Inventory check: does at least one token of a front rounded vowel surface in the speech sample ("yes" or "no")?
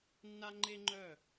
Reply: yes